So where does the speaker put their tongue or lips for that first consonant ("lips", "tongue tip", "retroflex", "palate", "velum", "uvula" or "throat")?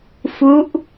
lips